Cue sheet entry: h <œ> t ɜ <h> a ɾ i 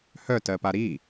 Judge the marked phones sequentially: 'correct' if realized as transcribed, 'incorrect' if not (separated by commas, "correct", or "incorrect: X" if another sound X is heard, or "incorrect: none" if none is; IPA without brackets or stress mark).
correct, incorrect: p